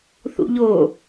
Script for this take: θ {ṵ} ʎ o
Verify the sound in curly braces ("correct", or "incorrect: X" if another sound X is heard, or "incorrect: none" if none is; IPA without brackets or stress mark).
correct